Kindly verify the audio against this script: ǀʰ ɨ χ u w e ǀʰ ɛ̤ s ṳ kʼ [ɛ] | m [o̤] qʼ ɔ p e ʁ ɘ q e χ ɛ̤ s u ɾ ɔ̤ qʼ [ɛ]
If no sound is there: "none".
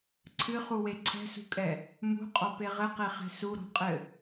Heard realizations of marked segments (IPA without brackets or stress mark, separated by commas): ɛ, ṳ, ɘ